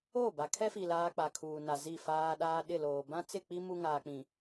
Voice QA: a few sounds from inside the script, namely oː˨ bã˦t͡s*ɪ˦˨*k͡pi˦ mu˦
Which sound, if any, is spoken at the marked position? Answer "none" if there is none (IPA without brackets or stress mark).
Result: ɪ˦˨